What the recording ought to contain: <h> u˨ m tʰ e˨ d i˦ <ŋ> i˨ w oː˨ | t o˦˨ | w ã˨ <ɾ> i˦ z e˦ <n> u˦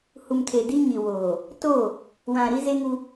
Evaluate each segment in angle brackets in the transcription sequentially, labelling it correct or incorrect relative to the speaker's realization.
correct, incorrect: ɲ, correct, incorrect: ŋ

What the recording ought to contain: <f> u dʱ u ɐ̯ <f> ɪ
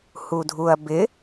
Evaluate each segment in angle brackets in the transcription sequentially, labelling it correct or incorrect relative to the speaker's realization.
incorrect: h, incorrect: b

